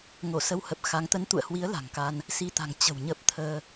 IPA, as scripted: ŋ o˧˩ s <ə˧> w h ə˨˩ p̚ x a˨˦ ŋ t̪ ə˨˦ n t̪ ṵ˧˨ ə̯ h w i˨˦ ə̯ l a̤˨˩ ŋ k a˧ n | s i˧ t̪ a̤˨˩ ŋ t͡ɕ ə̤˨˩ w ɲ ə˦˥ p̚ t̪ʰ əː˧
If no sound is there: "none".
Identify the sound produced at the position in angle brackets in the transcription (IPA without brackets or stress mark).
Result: ə˧